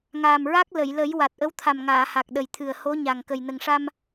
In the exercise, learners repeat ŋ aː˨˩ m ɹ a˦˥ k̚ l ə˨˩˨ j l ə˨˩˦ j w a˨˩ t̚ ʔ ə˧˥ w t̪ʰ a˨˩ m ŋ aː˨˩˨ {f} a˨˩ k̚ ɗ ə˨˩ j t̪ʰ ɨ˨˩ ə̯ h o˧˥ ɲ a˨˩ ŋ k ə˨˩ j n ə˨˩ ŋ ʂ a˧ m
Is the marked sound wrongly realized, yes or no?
yes